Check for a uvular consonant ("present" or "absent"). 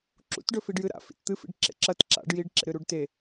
absent